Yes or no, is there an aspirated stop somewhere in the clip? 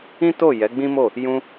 no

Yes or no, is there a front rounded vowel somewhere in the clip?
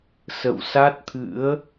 no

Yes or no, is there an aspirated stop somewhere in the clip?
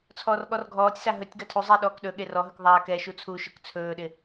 yes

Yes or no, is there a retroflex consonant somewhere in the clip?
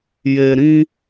no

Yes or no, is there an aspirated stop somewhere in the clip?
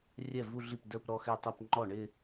no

